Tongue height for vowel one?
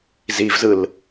high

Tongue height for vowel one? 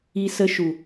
high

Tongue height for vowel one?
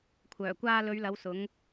mid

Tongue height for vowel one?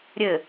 mid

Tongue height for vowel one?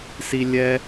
high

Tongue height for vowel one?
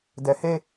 mid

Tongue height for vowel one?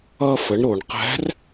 mid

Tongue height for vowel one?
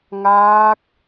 low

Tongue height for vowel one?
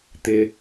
high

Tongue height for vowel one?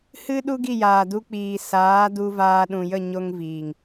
high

